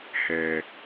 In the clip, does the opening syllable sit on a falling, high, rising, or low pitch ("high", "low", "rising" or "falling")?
low